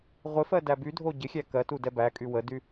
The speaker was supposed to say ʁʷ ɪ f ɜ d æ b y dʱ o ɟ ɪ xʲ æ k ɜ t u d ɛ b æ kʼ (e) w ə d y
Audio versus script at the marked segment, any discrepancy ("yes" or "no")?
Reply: yes